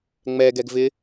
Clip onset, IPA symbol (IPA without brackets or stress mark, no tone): ŋ͡m